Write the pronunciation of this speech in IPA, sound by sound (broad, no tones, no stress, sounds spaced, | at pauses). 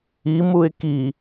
i m u ɪ̯ k i